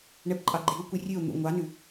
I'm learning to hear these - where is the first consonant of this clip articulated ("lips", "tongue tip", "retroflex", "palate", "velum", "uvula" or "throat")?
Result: retroflex